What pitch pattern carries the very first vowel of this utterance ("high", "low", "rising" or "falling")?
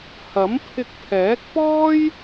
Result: rising